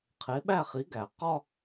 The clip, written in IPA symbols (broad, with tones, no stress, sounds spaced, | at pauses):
qʰ e˨˥ ɓ æ˥˧ χ i˨˥ ɡ æ˨˩ q ɒ˥